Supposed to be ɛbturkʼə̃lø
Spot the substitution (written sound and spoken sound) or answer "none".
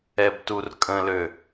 none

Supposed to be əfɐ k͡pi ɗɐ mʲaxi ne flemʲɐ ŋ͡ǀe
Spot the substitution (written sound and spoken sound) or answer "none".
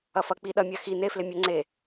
ə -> ɐ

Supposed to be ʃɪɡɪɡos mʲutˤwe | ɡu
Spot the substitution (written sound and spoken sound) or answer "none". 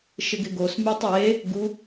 none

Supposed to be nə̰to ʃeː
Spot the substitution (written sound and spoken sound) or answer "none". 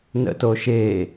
none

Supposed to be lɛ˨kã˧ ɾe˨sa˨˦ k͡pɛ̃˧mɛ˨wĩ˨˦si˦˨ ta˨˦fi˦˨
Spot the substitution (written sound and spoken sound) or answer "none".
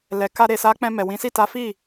ã˧ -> a˧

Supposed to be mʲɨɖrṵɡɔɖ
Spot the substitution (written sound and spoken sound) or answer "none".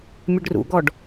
none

